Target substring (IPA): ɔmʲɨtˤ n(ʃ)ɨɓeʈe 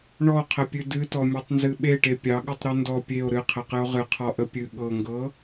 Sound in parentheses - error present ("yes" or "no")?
yes